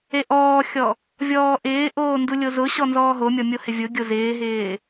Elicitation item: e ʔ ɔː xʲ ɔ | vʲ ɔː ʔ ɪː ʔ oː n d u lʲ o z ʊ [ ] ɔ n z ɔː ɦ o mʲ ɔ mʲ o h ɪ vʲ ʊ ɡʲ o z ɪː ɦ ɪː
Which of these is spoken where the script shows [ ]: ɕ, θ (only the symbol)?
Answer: ɕ